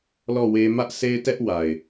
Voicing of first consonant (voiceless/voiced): voiced